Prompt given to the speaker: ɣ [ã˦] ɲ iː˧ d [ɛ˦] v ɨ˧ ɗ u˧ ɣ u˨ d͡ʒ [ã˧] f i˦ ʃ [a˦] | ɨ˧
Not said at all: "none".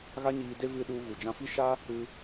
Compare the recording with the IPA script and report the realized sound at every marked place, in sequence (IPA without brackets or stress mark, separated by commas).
a˦, e˦, ã˧, a˦